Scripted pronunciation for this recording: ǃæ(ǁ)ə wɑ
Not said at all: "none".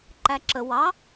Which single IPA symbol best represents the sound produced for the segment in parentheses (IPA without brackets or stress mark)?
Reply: ǁ